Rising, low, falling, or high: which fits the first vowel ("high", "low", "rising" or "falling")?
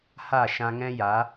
falling